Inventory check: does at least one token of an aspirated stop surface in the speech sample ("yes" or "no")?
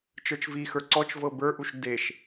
no